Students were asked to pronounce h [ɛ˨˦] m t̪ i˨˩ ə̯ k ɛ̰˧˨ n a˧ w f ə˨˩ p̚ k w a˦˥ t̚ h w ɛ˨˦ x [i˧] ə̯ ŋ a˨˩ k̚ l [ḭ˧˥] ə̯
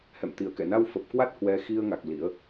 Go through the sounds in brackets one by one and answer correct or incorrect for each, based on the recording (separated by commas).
incorrect, correct, correct